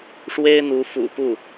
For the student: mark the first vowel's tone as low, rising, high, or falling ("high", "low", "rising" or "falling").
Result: high